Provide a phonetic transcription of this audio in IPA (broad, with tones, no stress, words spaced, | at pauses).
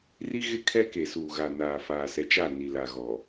ri˦ ɣɪ˦kʰɛ˦ ke˨suː˨ɣa˨ naː˨faː˨ sɛ˨t͡ʃa˦˨ ni˨la˨ɣɔ˨